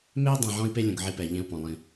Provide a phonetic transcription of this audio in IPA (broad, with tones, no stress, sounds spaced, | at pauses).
m e˦ i̯ dˤ ẽ˨ ʕ ɔ̃˦ i̯ p e˦ lʲ ũ˨ ɡ ʕ i˦ p ɛ˨ ʎ ẽ˦ u̯ p ɔ̃˨ lˠ ĩ˦